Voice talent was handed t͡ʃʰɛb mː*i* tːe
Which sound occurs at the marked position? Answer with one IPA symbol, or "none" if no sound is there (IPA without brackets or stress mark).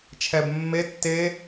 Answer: e